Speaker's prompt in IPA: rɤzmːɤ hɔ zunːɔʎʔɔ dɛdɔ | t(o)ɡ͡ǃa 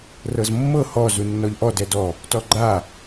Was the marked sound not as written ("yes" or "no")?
yes